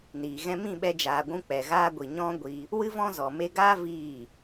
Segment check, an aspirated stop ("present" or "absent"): absent